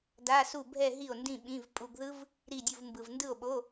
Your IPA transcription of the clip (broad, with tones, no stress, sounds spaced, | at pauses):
d a˧˥˧ s u˥˩ bʱ ɛ˥˧ ɦ i˥˩ o̯ n d ĩ˥˧ ɓ ĩ˧˥˧ v pʼ u˧ ɡ ð ɯ˦˥ v | ɾ i˥˧ dʲ u˥˧ v m b ɯ˧ v n d ɯ˥˩ o̯ ɓ o˧˥˧